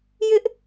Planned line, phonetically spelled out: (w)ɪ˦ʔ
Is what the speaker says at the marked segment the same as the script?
no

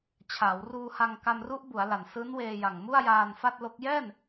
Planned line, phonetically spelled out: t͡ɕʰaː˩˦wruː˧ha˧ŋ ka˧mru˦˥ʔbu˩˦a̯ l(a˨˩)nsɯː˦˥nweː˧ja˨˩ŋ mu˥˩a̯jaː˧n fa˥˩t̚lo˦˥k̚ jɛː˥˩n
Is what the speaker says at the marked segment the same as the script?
yes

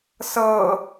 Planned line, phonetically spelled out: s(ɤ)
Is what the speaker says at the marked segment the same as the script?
yes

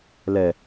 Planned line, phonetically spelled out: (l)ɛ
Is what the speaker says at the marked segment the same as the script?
yes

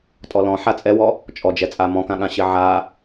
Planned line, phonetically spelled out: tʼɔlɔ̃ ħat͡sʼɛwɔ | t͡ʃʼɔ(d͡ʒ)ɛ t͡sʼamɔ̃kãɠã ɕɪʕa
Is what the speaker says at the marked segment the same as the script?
yes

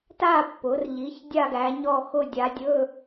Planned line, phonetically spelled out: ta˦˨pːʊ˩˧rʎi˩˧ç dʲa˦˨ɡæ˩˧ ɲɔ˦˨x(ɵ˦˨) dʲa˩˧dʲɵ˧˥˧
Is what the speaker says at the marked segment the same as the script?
no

